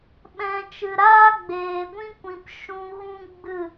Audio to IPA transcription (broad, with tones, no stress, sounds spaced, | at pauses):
ɓ ɛ̃˨ t͡ʃ ɨ˨ ɾ aː˦ ɡ͡b eː˨ ɡʷ ĩ˦ kʷ ĩ˨ p ʃ ũ˧ ɣ ũ˦ ɡ͡b ɨ˦˨